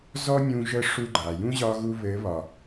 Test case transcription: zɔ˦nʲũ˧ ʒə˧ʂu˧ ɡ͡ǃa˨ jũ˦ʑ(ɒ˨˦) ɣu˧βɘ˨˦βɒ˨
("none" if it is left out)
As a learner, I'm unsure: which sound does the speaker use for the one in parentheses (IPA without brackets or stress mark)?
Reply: ɒ˧